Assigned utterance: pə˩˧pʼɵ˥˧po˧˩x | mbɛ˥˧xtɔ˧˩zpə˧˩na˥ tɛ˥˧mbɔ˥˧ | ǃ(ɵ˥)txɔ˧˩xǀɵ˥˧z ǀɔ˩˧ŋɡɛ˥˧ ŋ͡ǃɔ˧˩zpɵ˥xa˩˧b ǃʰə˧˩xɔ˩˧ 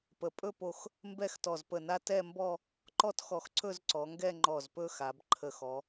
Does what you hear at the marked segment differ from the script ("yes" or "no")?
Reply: yes